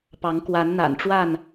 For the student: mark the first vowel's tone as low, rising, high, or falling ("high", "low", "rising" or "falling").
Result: rising